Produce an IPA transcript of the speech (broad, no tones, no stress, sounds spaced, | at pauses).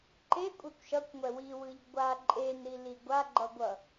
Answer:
ǃ e kʷʼ ɛ kʷ ʃ ʌ kʷ ŋʷ ɛ w i w ɯ ʎ ɡʷ a ǃʼ e n ɾ i l i ɡʷ a ɡ͡ǃ ʌ ɡʷ ʌ